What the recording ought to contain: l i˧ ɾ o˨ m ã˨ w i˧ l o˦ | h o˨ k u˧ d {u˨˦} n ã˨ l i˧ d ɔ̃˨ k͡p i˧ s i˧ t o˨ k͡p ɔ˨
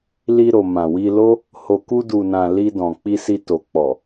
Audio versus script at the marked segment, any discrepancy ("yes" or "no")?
yes